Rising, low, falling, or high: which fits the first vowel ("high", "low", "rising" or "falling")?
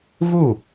falling